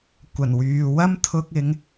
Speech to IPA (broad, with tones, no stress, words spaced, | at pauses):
kʷɐ˨˩nwyː˨ wɐ˥mt̪ʰʊ˧k̚ɪ˨˧ŋ